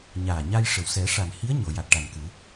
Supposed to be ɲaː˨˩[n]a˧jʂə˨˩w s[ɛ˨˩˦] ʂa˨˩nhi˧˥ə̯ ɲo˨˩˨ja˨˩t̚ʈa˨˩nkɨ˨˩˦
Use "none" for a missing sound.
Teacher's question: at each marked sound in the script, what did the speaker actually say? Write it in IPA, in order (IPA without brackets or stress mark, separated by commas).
ɲ, ɛ˨˩˦